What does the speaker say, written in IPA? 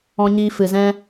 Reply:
ɔ̃˧ɲiː˧ fɨ˨zɛ̃˧

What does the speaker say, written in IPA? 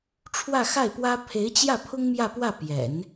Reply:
ʈ͡ʂʰwä˥˧xa˥˩ɪ̯pwä˥ pʰe˧˥ɪ̯t͡ɕjä˥˩pʰʊ˥ŋ mjä˥˧pwä˥˩ pjɛ̰˨˩˦n

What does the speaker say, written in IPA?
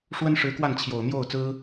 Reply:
ʂwə˥nʂɻ̩˧˥kwa˥˩n t͡ɕʰjo˨˩ʊ̯n̪jo˥˩ʊ̯ t͡sɹ̩˥

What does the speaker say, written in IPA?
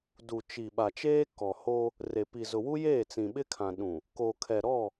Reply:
du˨t͡ʃi˨ ɓa˨t͡ʃeː˦ kɔ˨ho˦ | re˨pi˨ zʊ˨wu˦jeː˦˨ t͡sĩ˨ɓɪ˦kʰã˨ ɗũ˨ | ko˨kʰɛ˨ ɾɔ˦˨

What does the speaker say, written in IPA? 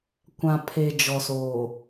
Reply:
kʷã˨pʰe˨ d͡ʒɔ˨soː˨

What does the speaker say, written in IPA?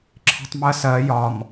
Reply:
ǁʰe̤tˤmɜsɜ jɒm

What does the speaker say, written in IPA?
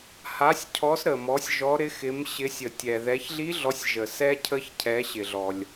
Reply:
ha˨˦sʲ cʰɔ˨˦s ɾə˩mɔ˨˦sʲ ʒɔ˨˦ɾɪ˨˦xɪ˨˦m ɕɪ˨˦sʲə˩tʲɛ˩ ðɛ˨˦çɮi˦˥ɮɔ˨˦sʲ ʒə˩sɛ˦˥ cʰə˦˥çcʰɛ˨˦ɕɪ˩ɮɔ˩lʲ

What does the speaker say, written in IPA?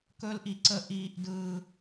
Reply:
kɵː˦lʔi˨ǀə˧ ʔiː˧ʔ dɯː˧

